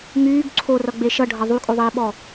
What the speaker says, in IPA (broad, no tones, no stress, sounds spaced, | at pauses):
ŋ yː ɡ ǀʰ o r ʌ ɡ͡b e ʃ ʌ ɖʱ ʌ ðˤ y kʼ o ðˤ iː ɓ ɔ